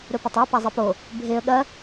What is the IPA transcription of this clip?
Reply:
ɾ ɵ p ɐ tˤ a p a zˤ e p o | bʱ e ə̯ ɠ ɐ

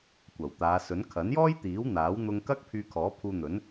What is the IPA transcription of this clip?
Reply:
kʷ ɐ˨˩ w t̪ aː˨˧ s ɵ˨˥ n kʰ ɐ˨˥ n j ɔː˥ j t̪ iː˨˥ w n̪ aː˨˥ w n̪ ʊ˧ ŋ k ɐ˥ k̚ pʰ yː˧ kʰ ɔː˨˥ pʰ uː˧ n̪ ɵ˨˥ n

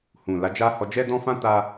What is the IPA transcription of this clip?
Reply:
h ũ˨ l a˨˦ d͡ʒ a˦ h ɔ˧ d͡ʒ ɛ˦ d ɔ̃˦ f ã˦ t a˦

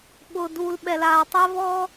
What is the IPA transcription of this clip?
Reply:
ɓ ʊː˨ d u˨ l ɓ ɛ˨ l aː˨ tˤ ɛ˦ v ɔ˦

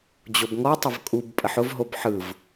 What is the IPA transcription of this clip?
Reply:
d͡ʑ o b ŋ ɔ tˤ ə v kʼ u b pʼ ə ħ ʊ v ɦ o b ħ ɯ v

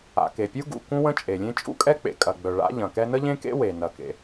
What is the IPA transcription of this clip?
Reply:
a̰˩ k e˩ pʲ u˥ ɡ ṵ˩ k ũ˥ w ə̃˥ t͡ʃʼ e˩ lʲ ẽ˥ t͡ʃʼ ṵ˥ kʼ ɛ˥ k͡p ḛ˩ kʼ ɐ˩ ɡ͡b œ˩ ɭ a̰˥ ʎ ɐ̃˩ k ɛ˥ n ə˥ ʎ ẽ˥ k ḛ˥ w e˩ n ɐ˩ k ḛ˩

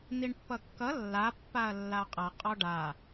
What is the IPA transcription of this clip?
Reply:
n̪ i ɳ pː ʌ kː ʌ lː a pː a ɐ̯ lː a qʼ ʌ qʼ ɔ ɖ a

